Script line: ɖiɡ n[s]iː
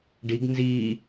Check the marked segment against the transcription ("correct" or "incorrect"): incorrect